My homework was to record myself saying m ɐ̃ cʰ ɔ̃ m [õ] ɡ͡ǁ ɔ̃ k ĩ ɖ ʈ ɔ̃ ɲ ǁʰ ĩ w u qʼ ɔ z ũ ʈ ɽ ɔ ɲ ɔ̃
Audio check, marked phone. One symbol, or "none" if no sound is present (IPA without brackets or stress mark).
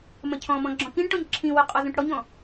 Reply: ɔ̃